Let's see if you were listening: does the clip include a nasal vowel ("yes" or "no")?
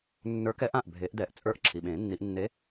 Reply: yes